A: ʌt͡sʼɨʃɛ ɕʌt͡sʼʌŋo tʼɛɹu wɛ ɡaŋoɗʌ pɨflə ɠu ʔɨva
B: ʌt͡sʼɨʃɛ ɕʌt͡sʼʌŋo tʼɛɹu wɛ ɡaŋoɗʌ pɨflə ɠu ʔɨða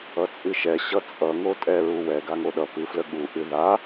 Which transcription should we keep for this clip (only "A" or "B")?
B